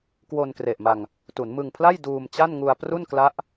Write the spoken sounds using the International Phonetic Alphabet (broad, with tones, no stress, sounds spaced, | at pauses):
k w o˧ n k r e˨˩ ʔ m a˧ ŋ | t u˩˦ n m ɯ˧ ŋ pʰ l a˥˩ j d uː˧ m t͡ɕ a˥˩ n ŋ u˧ a̯ p r u˥˩ n k l a˦˥ ʔ